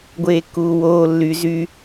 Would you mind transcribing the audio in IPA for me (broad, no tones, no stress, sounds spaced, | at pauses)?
ɡʷ eː kː uː w oː lː y z y